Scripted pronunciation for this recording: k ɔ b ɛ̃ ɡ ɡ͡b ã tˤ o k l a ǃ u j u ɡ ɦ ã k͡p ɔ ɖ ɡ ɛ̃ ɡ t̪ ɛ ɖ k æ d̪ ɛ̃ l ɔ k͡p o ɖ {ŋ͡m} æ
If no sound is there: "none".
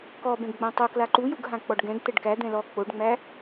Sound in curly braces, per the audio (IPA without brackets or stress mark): ŋ͡m